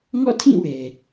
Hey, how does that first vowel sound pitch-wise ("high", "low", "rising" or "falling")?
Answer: falling